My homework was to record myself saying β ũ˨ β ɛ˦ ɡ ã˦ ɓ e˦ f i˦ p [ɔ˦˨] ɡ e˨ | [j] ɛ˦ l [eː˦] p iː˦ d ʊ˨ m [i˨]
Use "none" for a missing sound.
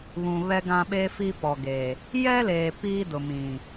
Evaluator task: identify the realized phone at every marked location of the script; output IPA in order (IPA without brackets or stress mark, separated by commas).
ɔ˨, j, eː˨, ĩ˨